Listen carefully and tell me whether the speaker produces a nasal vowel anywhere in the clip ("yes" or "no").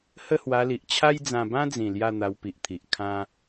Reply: yes